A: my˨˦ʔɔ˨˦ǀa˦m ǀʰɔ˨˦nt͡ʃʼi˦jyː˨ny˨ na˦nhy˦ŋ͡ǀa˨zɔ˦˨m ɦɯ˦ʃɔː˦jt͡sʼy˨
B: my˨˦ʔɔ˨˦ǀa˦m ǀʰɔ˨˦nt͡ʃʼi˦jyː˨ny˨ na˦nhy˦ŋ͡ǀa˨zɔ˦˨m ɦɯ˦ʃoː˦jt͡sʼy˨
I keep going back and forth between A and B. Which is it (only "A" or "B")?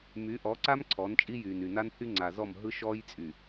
A